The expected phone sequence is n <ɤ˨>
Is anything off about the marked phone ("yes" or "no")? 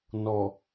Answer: yes